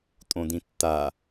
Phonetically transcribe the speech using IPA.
tʼ õ d ĩ tː a

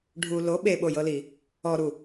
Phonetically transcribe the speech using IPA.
ɖʱ u l o ɓ e ɓ o j ɤ l i | ɔ ɾ u

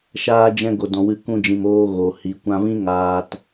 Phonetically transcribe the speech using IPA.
ʃ aː˧ d͡ʒ ɛ̃˧ ɡ o˨ d ɔ̃˨ w ɨ˧ k ũ˧ d͡ʒ ĩ˨ m oː˧ ɣ o˨ h i˨ kʷ ã˧ v ĩ˦ ŋ aː˧ t

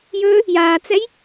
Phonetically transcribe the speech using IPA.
j ɵ | j aː t͡s ɛ j

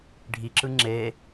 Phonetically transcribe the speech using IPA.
ɖʱ i ǁ ɯ ŋ͡ǁ e

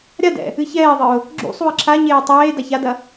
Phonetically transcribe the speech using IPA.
ɾʲ a d ɛ̰ | ɨ ç ɛː ðˤ ɨ ʊ̯ | ɡ͡ǁ ṵ sˤ u ɪ̯ ǁʰ a ɲ eː tˤ eː d a ç a d ɐ

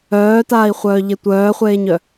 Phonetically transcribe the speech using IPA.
œː t aː i̯ χʷ œː ʎ e tʷ œː χʷ eː ɲ œ

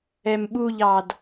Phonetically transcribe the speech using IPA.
ɛ m ɓ u ʎ ɑ d

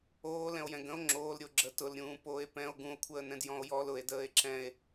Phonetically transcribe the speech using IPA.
oː l ɛ̃ o̯ j ɛ̃ ɡ ə̃ o̯ ŋ͡ǁ oː l ɾʲ o ɡ͡ǁ ə t ʊ l ɾʲ ũː p oː e̯ p ɛ̃ o̯ ɡ ũ o̯ kʷʰ əː n ɛ̃ d j ɔ̃ o̯ j ɔ l ʊ e̯ d əː e̯ ǁ ɛ̃ e̯

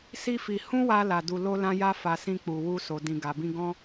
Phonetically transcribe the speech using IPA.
s i˦ f i˧ h ũ˦ w a˧ l a˨ d u˨ l o˧ l ã˧ j a˦ f a˧ s ĩ˦ k͡p u˧ w u˦ s o˧ d ĩ˨ ɡ a˨ b ĩ˧ ɡ ɔ̃˦

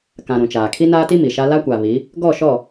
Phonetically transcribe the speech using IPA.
k ã˨ ɾ ũ˨ t͡ʃ aː˨ kʰ i˦ n aː˦ t i˦ m i˨ ʃ a˦ l a˦ kʷ a˨ β i˨˦ | ɡ ɔ˦˨ ʃ ɔ˦˨

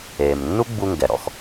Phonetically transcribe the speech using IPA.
eː˩ m nː u˥ ɡ͡b u˧ ŋ ɡ ɛ˩ ɾ ɔ̰˧ x

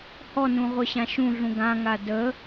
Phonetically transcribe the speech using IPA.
h ɔ n ũ ʁʷ œ ɕ ã ʃ ũ ɮ ũ ɡ ã ŋ a d ə

